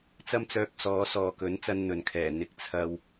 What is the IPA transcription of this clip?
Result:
t͡s ɐ˥ m t͡s œː˧ k̚ s ɔː˨˧ s ɔː˨ k ɵ˨˥ n t͡s ɐ˧ n n̪ ɵ˨ n kʰ ɛː˨˩ n̪ ɪ˧ k̚ t͡sʰ ɐ˧ w

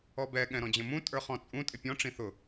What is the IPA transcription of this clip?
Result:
ɔ b ɛ ɠ ɛ̃ ɾ ɔ̃ d͡ʑ ə̃ m ũ tʼ ə˞ χ ɔ̃ t͡sʼ ũ tʼ ɪ pʲ ɔ̃ ʈ͡ʂ ĩ θ ʊ

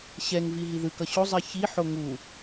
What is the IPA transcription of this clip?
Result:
ɕ ɛ ŋ v i ɦ i ð ɯ k ʌ ɕ o zˤ i ç i ħ o ŋ u

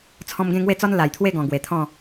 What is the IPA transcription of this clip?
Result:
t͡sʰ ɔ̃˧ m ɡ ẽ˥˧ ŋ w e˥˧ t͡s ɔ˦ n l a˨˩ j t̪ʰ w e˥˧ ɡ ɔ̃˨˩ ɡ w e˨˩ t̪ʰ ɔ̃˥˧

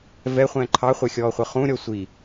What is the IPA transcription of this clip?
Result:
v ɛ χʷ ɛ̃ː ǃʰ ɑ χʷ ɛ xʲ ɔː χʷ ʌ χ ũ ɾʲ ɔ sʷ i

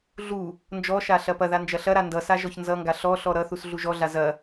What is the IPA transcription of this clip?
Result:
ɮ u | n d͡ʒ ɔ ʃ a ɬ ɐ p ɐ ð a n d͡ʒ ɐ ɬ ɐ ɾ a n d ʌ s a ʒ ɔ ç n z ʌ ŋ ɡ a ɬ ɔ ɬ ɔ ɾ ʌ θ u s ɮ u ʒ ɔ ɮ a z ɐ

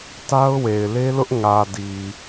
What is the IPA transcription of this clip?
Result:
t a˦ ʊ̯ w e˨ ɪ̯ l e˦ l ʊ˦ ʔ ŋ ä˨ d i˨

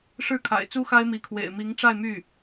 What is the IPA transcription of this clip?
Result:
ʂ ɻ̩˥˩ kʰ a̰˨˩ ɪ̯ t͡s u˥ x a˥ ɪ̯ m i˧˥ kʰ w ḛ˨˩ ɪ̯ m i˧˥ ŋ ʈ͡ʂ a˥˧ ɪ̯ m y˥˩

